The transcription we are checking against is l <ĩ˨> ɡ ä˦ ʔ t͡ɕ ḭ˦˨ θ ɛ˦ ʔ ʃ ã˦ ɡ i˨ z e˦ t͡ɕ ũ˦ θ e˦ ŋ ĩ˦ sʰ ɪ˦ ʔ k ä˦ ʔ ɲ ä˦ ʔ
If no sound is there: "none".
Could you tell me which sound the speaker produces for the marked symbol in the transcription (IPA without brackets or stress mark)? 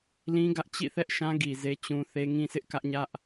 ĩ˦